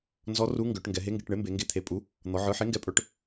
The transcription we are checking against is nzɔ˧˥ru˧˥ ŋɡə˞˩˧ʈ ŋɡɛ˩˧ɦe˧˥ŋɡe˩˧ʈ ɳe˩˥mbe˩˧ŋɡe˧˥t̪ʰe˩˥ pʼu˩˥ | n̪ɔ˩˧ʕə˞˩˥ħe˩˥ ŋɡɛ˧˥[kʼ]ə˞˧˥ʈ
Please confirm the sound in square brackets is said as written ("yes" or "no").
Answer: no